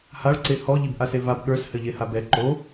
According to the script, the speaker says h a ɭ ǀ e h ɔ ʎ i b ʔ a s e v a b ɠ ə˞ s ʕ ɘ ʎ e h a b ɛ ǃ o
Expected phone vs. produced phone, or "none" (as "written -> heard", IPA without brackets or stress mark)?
ʕ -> h